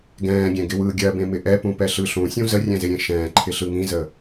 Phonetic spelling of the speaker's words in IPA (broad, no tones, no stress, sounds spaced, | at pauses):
ɡ ɛ̃ː ɡʲ ɛ̃ ɡ ɪ w ɯː ɡʲ ɜ b ẽ m ɪ ʔ ɛ p ũ p ɛ ɬ ɯ ɬ ũ sʲ ũ z ə rʲ ɛ̃ z ɪ ɾʲ ẽ ʃ ɛ̃ː ǃʰ ɪ ɬ ɯ ŋ ĩ z ə